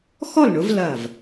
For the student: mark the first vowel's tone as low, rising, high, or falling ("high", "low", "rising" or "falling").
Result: falling